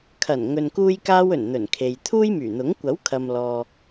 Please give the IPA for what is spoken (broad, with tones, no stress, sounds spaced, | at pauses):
kʰ ɐ˨˩ n ŋ ɵ˨ n k uː˧ j k aː˧ w ɵ˨˩ n n̪ ɵ˨˩ n kʰ e˨ j t̪ʰ uː˥ j m yː˨˩ n̪ ʊ˨˥ ŋ kʷ ɐ˨˥ w kʰ ɐ˨ m l ɔː˨